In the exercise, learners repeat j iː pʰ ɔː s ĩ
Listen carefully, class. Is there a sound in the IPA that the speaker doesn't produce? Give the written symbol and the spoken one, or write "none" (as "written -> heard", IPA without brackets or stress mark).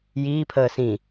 ɔː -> əː